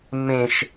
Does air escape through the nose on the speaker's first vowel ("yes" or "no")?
yes